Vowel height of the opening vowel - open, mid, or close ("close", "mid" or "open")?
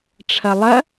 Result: open